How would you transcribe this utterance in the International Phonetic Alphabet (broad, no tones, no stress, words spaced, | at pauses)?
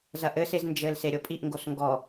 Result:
zɐʔɘsez nd͡ʒɘl seɾʲopʼiʔŋɡos ŋɡɔ